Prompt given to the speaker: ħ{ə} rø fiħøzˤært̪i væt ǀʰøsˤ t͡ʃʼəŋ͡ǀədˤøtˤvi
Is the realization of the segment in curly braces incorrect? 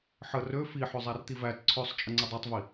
no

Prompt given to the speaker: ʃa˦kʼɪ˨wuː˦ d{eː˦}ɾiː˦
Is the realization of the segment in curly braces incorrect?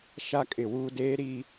no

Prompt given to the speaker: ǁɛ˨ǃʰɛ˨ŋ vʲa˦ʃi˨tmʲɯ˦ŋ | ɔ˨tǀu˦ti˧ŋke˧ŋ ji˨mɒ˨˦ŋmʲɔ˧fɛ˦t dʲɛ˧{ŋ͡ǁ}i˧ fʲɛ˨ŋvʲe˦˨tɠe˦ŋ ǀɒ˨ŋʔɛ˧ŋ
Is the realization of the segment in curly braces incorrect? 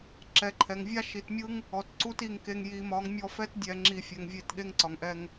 no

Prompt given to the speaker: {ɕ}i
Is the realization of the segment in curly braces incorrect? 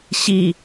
no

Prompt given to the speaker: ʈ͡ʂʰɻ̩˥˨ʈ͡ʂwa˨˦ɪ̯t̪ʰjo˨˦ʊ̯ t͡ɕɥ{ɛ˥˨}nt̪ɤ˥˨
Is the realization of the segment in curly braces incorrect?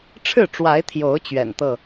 yes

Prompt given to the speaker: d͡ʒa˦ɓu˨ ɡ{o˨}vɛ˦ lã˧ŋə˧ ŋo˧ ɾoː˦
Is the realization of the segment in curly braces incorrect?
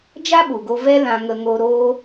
yes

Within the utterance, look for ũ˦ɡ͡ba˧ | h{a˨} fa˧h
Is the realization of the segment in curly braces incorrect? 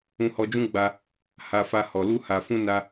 yes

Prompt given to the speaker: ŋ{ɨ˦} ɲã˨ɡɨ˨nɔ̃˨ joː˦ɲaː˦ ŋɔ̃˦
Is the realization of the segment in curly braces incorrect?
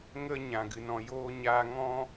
yes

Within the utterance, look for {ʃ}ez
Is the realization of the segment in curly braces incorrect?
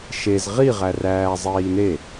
no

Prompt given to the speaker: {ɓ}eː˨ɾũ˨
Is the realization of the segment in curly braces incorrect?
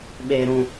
no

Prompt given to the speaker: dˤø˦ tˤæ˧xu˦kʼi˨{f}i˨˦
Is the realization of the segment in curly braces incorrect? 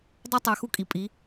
yes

